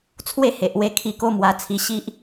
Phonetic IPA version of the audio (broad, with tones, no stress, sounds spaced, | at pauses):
t͡sʰ w e˥˧ h e˨ ʔ w e˧ kʰ i˧ k o˦ m w a˧ t͡sʰ i˧ ɕ i˦ ʔ